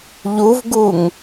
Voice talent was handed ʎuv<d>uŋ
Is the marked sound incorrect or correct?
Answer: incorrect